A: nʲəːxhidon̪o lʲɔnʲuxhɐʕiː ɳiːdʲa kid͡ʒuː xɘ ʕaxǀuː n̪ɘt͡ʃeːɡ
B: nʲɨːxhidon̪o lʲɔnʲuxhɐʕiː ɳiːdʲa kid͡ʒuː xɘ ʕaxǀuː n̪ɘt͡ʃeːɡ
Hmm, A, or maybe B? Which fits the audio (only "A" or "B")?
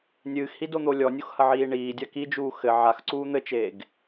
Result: B